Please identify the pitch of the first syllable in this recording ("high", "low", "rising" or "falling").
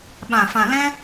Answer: low